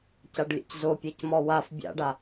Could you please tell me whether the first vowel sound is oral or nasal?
oral